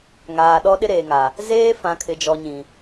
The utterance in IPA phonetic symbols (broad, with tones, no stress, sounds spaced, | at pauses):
ŋ aː˨ ɗ ɔ˦ ɗ ɪ˦ ɾ eː˨ ŋ a˨ | z eː˦ f ã˨ kʰ ɪ˨ d͡ʒ ɔ˨ ɲ ĩ˨